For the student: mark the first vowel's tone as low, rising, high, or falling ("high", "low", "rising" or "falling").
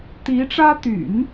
rising